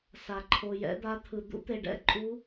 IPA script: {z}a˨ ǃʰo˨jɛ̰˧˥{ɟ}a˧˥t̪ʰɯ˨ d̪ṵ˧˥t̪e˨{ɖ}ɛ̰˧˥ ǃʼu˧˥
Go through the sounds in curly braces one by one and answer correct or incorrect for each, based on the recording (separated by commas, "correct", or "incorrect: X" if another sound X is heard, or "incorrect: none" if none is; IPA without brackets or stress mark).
incorrect: s, incorrect: d̪, correct